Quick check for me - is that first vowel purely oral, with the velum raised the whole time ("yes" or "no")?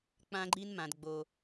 no